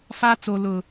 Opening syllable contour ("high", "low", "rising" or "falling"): high